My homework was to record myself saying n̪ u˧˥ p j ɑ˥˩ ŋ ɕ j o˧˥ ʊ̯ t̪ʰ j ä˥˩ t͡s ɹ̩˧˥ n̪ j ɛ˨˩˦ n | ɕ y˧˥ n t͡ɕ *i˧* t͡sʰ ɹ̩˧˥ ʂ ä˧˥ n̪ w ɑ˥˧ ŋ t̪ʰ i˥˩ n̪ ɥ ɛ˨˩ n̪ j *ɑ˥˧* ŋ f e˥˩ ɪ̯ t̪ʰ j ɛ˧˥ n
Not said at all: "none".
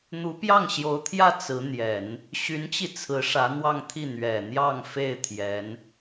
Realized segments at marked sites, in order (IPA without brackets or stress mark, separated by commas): i˧, ɑ˥˧